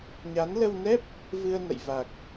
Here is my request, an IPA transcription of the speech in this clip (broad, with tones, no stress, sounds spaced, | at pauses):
ɲ a˨˦ n l ə˧ w n ɛ˦˥ p̚ | v ɨ˧ ə̯ n ə̰˧˨ j v a˨˩ k̚